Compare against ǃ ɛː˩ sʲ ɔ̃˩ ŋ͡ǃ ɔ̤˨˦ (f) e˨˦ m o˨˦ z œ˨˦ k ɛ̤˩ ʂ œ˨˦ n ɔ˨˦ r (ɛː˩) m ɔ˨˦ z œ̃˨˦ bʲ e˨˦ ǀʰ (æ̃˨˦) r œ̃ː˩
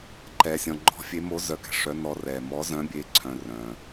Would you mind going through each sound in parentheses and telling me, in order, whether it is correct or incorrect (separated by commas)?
incorrect, correct, incorrect